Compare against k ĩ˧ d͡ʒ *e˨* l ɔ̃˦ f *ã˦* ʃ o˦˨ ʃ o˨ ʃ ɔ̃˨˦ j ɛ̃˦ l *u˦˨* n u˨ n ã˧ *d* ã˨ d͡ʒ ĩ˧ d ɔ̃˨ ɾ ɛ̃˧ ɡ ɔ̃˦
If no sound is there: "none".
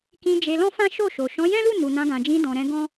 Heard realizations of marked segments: e˧, ã˦, u˦˨, ɡ

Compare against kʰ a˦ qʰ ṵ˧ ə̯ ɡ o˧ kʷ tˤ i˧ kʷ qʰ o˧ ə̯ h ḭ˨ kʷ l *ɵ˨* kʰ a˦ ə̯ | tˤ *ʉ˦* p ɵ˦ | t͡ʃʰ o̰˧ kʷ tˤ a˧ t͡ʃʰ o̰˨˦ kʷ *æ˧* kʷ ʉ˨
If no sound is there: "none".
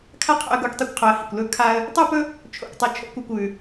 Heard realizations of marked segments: ɵ˦, ʉ˦, a˧

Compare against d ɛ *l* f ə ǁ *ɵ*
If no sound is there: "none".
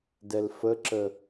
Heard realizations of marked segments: l, ə

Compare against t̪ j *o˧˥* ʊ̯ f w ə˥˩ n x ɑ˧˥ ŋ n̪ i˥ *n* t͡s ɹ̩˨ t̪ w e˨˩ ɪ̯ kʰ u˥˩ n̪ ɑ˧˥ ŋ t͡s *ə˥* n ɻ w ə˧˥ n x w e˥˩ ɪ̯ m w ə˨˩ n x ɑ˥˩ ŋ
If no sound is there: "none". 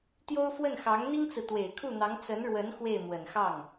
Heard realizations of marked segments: o˥, ŋ, ə˧˥

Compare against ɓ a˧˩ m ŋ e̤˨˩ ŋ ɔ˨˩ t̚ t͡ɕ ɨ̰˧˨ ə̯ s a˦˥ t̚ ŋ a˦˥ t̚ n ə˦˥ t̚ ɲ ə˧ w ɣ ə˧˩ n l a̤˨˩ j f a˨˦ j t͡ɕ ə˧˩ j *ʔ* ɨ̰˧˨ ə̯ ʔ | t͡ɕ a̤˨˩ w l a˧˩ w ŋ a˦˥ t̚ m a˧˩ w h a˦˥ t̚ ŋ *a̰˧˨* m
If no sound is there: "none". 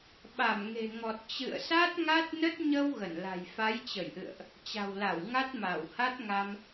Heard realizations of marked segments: ʔ, a˧

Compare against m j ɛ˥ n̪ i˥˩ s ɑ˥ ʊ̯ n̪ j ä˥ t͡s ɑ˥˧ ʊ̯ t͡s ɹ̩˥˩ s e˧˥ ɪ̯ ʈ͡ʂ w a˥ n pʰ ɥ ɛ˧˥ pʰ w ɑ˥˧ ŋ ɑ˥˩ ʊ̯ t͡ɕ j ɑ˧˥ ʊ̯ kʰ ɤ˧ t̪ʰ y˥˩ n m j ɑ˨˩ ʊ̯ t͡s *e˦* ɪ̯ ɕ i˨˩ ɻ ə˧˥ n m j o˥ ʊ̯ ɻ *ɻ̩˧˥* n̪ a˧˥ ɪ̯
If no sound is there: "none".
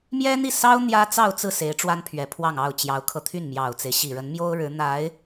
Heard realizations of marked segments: e˦, ɻ̩˧˥

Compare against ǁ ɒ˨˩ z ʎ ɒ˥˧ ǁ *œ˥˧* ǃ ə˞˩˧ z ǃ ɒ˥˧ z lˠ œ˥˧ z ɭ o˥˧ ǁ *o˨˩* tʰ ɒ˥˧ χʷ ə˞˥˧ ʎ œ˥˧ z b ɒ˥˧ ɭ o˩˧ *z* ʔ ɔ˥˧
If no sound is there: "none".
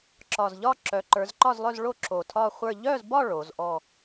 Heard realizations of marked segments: œ˩˧, o˨˩, z

